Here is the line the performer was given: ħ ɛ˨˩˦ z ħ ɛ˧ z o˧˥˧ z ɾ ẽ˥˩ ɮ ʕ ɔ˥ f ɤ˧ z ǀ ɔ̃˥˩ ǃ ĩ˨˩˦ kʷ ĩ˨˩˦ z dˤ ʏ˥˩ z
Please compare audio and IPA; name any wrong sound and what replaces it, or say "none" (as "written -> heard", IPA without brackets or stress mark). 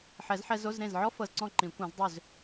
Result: ɮ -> z